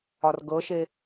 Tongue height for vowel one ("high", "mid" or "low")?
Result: low